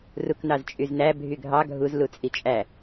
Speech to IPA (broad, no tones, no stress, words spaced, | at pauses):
ruknɑzt͡ʃʼyznæ bʱyɡʱɑ ɡʱuz lut͡sʼit͡ʃʼæ